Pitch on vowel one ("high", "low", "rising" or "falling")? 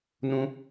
high